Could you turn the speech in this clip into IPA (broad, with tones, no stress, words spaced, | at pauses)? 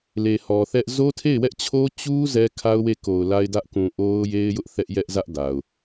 le˨hɔ˨θɛ˦ʔ zo˦tʰe˦˨ɪ̯wɛ˦ʔt͡ɕʰo˦ t͡ɕu˦ zɛ˦kʰa˦ʊ̯we˦˨ ko˨ʊ̯la˦ɪ̯dä˦ʔ kũ˨ʔo˦ʊ̯je˦ɪ̯jʊ˦ʔ θɛ˦ʔjɛ˦ʔzä˦ʔ da˨ʊ̯